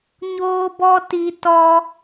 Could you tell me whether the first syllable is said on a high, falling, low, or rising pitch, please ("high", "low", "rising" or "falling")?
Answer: high